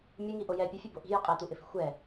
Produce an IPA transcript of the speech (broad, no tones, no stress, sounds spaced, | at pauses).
mʲ u ŋ i ʔ o j ɛ pʲ u fʲ ɛ b o ʔ i̤ j ɪ qʼ e t̪ u ʔ ɪ f i̤ xʷ ɛ